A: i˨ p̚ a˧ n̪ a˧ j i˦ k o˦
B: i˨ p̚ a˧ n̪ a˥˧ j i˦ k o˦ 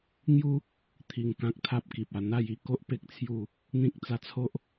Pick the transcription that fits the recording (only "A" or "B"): B